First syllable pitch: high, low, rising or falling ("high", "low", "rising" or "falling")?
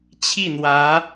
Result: falling